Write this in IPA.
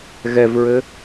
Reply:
ɣɛvɹɘ

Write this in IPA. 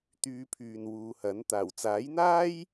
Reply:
t̪yː˧pʰyː˨nwuː˨˧hɐ˨˥n t̪aː˨˩wt͡saː˨˥jn̪aː˥j

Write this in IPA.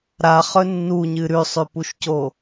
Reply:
ɾaχɵ nːuɲɨ ɾʉsˤʉpuʃco

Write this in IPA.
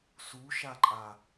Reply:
suʃaǃʼa

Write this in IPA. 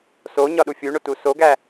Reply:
soɲɒɗu fʲuɳotu soɡæ

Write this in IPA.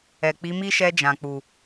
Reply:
ɛ˨k͡pi˨˦mi˦ʃɛ˧ d͡ʒã˨k͡pu˨

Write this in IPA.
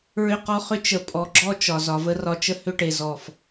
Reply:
ɹʏ˦qɔ˦χʏ˦ t͡ʃə˨ pʼɔ˨ɡ͡ǁɔ˦ t͡ʃɒ˨zɒ˨ və˦rɒ˦ t͡ʃə˦ hʏ˦ʈe˨zɔ˨f

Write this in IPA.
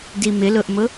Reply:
dimɪlʊʔmʊ

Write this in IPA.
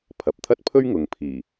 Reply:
pʰɐ˨p̚t̪ʰɐ˥t̚pʰɵ˥ɥ ŋʊ˨ŋpʰiː˨˩

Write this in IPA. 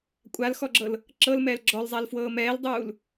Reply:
kʷʼalxɔɡ͡ǁɤl | ǁɤlmɛːl ɡ͡ǁɔlzˤalfwɤː mɛːldˤuːl

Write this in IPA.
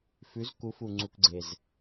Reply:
fʉ˧˥zku˧˥fu˧ ŋ͡ǀu˧kɡ͡ǀe˧z

